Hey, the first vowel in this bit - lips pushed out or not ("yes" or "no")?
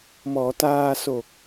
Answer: yes